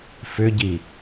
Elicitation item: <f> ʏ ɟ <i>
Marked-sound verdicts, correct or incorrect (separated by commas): correct, correct